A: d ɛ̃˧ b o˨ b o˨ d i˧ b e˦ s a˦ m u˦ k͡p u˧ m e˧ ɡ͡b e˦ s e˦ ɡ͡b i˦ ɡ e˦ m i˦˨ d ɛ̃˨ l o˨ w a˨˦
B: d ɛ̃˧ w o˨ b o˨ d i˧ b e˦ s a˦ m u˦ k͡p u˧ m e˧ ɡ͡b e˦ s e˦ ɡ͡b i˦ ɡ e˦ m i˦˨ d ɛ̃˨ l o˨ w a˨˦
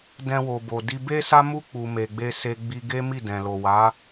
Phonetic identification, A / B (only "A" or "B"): B